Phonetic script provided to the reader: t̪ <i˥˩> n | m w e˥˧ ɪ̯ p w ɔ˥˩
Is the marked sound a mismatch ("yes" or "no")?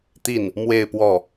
no